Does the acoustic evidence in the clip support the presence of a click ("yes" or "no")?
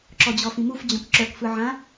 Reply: yes